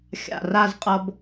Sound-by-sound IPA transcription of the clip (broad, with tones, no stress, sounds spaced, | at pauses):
xʲ a̰˧˩ r a˥˧ z qʼ ʌ˧ b